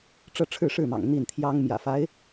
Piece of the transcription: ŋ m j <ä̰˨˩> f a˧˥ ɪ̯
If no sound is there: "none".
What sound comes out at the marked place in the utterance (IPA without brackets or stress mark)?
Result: ä̰˨˩